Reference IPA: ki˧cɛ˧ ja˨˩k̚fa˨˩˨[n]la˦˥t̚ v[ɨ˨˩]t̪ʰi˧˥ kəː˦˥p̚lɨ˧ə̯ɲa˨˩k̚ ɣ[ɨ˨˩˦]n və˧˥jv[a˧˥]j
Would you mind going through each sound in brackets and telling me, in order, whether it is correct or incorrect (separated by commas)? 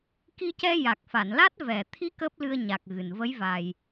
correct, incorrect, incorrect, incorrect